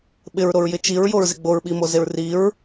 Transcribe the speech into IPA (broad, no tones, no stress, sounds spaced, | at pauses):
ɓ ɪ ɹ ɾ o ɹ j ɪ t͡ʃ i ɹ j o ɹ z ɪ ɡ͡b o ɹ ɓ i m o z e ɹ r i ɹ